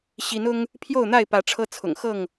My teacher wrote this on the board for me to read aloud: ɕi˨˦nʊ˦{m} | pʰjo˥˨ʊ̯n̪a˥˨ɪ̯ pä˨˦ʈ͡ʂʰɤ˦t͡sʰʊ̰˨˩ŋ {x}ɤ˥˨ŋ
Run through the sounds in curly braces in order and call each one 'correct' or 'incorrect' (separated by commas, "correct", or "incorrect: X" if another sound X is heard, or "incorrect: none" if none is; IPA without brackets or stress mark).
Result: incorrect: ŋ, correct